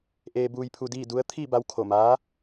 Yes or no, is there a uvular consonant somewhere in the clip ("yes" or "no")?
no